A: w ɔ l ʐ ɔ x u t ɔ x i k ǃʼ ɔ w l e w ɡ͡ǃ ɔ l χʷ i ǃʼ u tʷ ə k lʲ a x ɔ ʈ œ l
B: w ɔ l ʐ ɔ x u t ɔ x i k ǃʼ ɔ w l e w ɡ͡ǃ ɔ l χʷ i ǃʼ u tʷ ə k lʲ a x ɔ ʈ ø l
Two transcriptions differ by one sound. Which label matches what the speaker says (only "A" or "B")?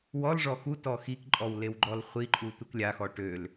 B